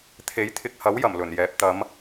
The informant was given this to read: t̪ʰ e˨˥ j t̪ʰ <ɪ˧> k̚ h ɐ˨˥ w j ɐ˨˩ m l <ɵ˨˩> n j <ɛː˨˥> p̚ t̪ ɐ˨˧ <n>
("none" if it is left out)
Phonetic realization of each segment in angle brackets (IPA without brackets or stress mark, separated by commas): ɪ˨, ɵ˨˩, ɛː˨˥, m